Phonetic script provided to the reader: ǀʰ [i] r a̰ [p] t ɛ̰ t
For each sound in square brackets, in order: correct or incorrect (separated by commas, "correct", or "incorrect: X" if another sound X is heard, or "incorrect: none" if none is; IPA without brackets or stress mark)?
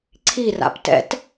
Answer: correct, correct